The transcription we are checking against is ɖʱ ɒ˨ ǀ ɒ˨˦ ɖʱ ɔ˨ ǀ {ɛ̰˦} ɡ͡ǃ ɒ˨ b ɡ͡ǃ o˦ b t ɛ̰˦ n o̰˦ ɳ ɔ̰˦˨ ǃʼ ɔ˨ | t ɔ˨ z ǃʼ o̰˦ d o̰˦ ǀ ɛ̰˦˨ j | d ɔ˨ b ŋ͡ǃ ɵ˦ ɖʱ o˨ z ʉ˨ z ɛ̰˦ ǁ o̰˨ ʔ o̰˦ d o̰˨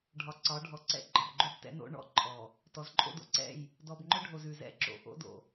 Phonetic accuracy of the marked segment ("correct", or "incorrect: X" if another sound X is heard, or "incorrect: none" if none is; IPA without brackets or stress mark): correct